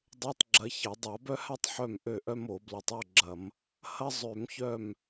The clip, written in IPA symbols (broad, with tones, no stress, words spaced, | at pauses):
dˤø˧˥˧tˤɡ͡ǁɐ˨˦çɐ˧˩˧ dˤa˧˩˧bœ˥ha˥tˤ ħœ˥˨m ʔø˥˨ʔœ˥mo˧˩˧ blɐ˨˦tˤo˧˥˧ɡ͡ǁɐ˧˩˧m | hɐ˥ zˤø˧˩˧mçœ˥˨m